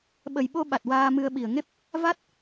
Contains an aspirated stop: no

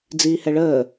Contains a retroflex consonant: yes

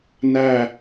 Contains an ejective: no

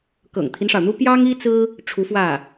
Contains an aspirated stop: yes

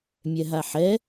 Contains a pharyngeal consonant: yes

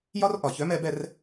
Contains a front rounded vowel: yes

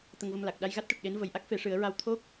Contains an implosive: yes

